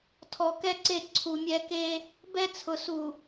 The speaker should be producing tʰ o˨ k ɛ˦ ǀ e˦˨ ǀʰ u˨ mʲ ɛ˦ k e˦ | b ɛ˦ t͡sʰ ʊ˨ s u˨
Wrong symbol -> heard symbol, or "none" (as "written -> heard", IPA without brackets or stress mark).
o˨ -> ɔ˨